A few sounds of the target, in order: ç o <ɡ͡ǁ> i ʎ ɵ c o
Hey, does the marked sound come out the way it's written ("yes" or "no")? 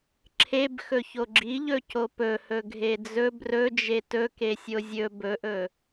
yes